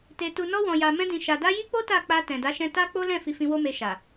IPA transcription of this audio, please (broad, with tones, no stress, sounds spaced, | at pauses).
t e˨ t u˨ n ɔ˧ w ɔ̃˨ j a˨ m ɛ̃˧ d ĩ˨ ʃ a˨ d a˧ j i˦ k͡p o˦ t a˦˨ k͡p a˧ t ɛ̃˨ d a˨˦ ʃ ɛ̃˧ t a˦ k͡p o˦ l ɛ̃˦˨ f i˧ f ĩ˧ w o˦ m e˧ ʃ a˨